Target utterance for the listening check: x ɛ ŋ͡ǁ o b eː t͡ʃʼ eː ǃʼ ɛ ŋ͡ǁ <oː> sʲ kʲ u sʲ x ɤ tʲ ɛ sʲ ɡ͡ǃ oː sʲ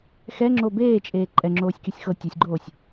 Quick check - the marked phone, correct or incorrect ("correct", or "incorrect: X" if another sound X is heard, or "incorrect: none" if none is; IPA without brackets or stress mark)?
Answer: correct